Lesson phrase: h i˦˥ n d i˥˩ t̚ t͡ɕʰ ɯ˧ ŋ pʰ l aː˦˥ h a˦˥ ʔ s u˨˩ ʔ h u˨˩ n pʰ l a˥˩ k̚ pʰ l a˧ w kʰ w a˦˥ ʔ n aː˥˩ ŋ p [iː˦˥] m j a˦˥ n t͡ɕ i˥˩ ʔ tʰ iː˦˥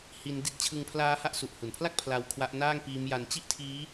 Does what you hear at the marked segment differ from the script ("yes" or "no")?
no